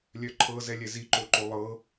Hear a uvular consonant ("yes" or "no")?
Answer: no